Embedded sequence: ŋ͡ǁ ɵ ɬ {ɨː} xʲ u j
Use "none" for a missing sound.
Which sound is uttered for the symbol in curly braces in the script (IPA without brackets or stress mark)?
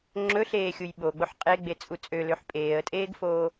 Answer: eː